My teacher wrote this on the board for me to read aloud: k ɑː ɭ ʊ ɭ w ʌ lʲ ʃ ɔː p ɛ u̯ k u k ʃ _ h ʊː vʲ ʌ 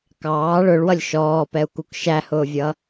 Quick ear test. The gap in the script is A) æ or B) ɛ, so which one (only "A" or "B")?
A